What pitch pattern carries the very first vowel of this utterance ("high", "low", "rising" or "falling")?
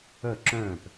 falling